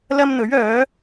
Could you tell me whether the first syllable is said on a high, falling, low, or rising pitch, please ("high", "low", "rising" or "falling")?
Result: high